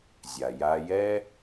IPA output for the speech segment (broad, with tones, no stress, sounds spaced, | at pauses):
zʲ a˩ j a˧ j ɛ˥